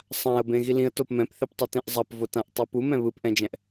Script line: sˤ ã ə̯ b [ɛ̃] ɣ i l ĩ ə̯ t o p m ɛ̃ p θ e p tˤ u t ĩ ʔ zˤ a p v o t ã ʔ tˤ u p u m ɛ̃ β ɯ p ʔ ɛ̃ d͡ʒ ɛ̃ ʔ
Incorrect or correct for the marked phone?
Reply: incorrect: ẽ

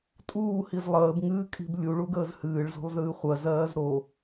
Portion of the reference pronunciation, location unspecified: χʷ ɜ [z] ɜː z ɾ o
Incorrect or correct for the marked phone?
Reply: correct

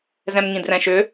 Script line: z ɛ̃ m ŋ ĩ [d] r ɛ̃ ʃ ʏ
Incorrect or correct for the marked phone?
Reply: correct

